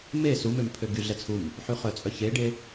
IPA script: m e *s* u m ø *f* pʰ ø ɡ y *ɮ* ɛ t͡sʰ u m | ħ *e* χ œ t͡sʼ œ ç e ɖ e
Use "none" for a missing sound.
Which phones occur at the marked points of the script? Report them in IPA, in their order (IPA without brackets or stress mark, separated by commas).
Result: s, m, ɮ, y